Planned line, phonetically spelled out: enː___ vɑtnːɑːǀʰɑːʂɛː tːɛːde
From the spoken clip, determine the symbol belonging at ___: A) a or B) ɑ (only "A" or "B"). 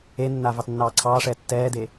A